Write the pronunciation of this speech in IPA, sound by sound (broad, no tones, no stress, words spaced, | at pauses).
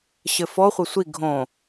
ɕɘfɔ χʷɐsʷi ɡʱõ